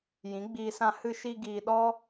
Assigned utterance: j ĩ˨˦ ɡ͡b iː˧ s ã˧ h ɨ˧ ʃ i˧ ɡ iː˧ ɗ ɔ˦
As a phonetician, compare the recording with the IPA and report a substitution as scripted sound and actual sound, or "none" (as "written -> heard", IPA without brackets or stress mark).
none